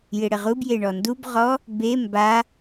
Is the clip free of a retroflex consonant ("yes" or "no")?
no